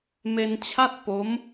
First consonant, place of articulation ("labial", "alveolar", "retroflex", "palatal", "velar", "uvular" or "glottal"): labial